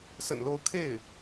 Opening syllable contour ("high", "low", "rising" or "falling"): low